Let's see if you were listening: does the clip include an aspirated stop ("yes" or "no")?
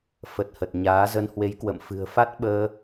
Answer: no